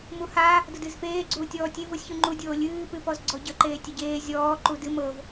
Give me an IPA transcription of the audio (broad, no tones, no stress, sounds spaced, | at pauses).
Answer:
m u h a | d ʊ d ɨː z f eː ɡ͡ǀ uː tʲ ɔː tʲ e v ʊ sʲ ç u ŋ͡ǃ u dʲ oː lʲ ɨː p ɨ p ɔ z ɡ͡ǀ ɔ ɟ ə ǃ eː tʲ ə ɟ eː zʲ ɔː ǃ u d ɨ m ɤ v